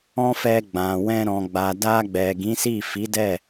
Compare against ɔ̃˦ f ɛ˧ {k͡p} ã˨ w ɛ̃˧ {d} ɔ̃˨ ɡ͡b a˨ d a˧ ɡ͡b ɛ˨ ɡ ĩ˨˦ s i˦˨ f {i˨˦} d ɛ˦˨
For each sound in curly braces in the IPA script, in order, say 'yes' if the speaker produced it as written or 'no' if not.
no, no, yes

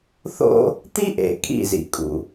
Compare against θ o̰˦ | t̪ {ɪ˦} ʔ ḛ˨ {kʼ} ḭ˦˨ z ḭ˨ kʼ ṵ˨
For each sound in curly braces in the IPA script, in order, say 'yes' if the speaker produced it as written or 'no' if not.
no, yes

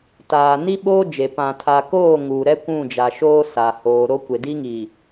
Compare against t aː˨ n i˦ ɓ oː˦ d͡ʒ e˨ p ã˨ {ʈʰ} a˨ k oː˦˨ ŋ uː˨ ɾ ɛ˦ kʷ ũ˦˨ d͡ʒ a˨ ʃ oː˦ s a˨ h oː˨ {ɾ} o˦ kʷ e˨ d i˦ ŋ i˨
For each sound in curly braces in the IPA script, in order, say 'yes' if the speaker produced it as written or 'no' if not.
no, yes

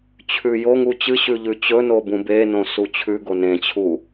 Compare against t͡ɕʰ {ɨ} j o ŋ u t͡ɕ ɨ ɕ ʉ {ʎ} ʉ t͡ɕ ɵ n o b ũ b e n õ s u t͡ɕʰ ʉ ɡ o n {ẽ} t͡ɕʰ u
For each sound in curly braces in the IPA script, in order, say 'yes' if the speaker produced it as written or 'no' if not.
no, yes, yes

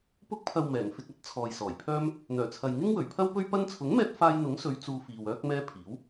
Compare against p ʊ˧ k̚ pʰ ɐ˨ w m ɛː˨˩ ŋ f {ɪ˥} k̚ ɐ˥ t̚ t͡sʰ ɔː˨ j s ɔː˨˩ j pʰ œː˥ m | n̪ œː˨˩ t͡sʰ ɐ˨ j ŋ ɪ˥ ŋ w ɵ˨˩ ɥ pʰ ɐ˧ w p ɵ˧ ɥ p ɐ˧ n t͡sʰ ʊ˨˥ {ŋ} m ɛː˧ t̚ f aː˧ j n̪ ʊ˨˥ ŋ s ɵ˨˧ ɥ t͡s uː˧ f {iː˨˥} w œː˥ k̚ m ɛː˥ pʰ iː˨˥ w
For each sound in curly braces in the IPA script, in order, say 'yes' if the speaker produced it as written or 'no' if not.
no, yes, no

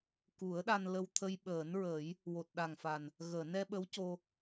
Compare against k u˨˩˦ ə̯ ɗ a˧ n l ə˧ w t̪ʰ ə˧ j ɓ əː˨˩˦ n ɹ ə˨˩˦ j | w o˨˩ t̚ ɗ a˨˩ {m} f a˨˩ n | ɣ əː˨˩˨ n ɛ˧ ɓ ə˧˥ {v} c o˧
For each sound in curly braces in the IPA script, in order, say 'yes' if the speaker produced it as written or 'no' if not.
no, no

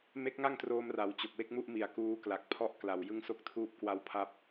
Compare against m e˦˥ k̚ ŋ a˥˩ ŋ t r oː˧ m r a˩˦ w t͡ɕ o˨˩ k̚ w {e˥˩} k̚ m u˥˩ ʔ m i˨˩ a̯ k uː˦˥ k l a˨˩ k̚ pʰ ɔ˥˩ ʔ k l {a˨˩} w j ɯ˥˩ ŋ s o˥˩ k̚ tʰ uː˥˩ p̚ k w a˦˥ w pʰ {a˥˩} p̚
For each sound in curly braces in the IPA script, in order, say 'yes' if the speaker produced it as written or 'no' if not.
yes, yes, no

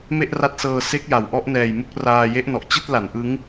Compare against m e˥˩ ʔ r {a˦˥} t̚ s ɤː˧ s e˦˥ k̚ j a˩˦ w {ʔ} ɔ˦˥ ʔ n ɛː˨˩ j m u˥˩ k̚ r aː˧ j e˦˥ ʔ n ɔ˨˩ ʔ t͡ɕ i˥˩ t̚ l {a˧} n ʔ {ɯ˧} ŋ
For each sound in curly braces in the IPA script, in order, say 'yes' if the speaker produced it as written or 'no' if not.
yes, yes, no, no

